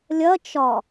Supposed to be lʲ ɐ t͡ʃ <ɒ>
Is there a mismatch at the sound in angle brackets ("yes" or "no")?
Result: no